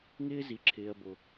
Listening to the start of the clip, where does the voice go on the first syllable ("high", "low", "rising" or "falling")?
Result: high